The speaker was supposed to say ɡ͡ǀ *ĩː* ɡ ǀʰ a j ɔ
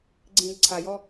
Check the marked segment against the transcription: correct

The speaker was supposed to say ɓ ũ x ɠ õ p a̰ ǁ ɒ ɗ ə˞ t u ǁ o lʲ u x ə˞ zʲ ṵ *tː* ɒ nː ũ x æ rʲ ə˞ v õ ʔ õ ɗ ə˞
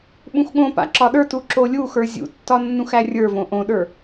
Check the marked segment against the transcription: correct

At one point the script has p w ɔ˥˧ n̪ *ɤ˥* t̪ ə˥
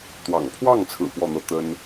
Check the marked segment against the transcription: incorrect: ɤ˥˩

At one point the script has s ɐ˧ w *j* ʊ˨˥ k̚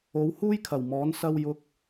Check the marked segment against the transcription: correct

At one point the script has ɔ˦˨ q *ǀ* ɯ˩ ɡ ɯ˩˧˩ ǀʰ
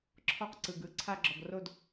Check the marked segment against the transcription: correct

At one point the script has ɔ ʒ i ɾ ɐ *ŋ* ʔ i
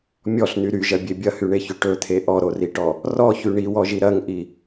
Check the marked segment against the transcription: correct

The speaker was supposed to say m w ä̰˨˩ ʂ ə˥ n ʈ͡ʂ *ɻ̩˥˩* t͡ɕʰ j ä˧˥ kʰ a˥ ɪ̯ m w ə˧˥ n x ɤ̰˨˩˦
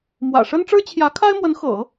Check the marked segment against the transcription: incorrect: ɻ̩˥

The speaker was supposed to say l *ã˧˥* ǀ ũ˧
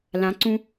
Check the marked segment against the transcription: correct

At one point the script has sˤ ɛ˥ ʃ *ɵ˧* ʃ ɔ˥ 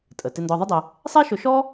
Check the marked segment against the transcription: correct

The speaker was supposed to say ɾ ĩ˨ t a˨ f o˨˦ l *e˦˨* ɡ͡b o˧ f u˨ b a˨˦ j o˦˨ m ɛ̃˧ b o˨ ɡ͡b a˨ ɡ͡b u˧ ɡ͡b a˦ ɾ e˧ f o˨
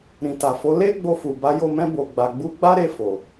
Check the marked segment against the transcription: incorrect: e˦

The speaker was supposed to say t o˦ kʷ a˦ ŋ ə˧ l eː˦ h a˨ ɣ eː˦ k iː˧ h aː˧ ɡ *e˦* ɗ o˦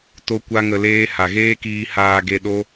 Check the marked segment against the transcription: incorrect: e˧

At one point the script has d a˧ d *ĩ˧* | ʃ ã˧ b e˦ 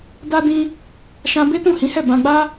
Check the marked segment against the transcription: correct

